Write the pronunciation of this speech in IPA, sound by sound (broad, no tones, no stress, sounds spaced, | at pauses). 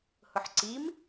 h ʊ ħ ǀ i m